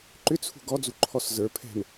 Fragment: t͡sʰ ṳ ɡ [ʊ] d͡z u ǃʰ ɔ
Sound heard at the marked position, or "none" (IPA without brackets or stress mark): ɔ